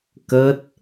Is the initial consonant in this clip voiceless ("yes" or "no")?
yes